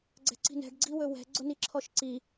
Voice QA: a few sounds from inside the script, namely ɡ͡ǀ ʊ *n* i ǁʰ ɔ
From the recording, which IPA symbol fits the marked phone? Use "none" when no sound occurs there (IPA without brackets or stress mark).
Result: n